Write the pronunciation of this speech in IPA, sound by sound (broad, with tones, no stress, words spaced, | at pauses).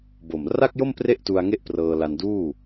bo˨˩m ra˥˩k̚jo˥˩m pre˥˩ʔtu˧a̯ ŋe˥˩ʔ prɤː˧la˧nduː˥˩